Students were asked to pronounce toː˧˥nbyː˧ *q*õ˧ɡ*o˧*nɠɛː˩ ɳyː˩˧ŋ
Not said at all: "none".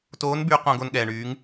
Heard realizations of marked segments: q, o˧

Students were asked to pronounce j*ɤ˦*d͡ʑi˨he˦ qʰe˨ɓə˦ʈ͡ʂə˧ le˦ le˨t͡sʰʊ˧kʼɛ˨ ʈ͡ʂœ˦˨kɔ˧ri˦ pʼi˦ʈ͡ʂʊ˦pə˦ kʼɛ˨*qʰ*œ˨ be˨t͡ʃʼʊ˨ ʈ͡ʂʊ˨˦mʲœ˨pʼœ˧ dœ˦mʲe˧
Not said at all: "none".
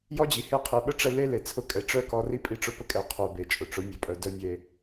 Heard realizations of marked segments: ɔ˦, qʰ

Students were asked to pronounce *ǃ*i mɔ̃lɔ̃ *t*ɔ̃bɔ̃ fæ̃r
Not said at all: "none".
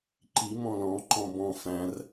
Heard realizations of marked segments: ǃ, ǃ

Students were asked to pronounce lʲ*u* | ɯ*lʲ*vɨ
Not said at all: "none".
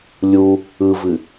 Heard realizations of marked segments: u, none

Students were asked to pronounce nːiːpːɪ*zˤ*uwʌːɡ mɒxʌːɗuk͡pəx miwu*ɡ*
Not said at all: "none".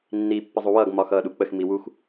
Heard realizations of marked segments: zˤ, x

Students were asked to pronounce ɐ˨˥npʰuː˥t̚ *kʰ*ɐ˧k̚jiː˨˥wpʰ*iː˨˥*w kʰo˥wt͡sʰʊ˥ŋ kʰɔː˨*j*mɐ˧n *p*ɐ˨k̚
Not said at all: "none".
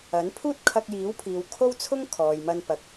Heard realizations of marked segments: kʰ, iː˨, j, p

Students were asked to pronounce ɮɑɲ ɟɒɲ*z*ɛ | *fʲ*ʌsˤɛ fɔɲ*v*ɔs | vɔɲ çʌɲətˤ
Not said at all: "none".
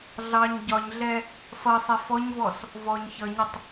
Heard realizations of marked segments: ɮ, f, v

